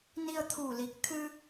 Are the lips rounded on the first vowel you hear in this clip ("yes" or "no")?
no